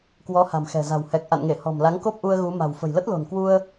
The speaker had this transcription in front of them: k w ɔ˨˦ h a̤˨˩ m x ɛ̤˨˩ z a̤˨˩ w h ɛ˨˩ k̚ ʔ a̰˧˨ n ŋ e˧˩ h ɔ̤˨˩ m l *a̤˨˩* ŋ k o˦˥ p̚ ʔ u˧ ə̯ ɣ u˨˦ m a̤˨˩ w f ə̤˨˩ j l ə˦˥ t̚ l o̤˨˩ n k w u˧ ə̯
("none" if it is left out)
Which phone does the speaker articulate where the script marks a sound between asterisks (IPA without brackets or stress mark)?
a˨˦